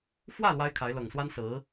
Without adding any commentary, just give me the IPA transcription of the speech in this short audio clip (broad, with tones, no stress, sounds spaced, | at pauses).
f w ä˥˩ l w a˥ ɪ̯ kʰ a˧˥ ɪ̯ l ɤ˨˩ ŋ s w a˥ n s ɹ̩˧˥